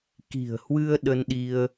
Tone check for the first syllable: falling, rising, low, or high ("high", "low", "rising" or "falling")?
low